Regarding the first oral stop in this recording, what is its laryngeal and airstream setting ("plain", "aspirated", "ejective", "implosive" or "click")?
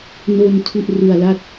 aspirated